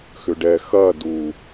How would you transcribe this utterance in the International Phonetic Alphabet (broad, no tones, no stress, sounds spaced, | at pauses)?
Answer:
x ʏ ɖ ɛ x ɐ d u